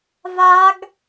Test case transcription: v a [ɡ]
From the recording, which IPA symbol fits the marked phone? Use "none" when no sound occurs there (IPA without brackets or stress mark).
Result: ɡ